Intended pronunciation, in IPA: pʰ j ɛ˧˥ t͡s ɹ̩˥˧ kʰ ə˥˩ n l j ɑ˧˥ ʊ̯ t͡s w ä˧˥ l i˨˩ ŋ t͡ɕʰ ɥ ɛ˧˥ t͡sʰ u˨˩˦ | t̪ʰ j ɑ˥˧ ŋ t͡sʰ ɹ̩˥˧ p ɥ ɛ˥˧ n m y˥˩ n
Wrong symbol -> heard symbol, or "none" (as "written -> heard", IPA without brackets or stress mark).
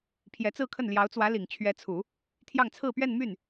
none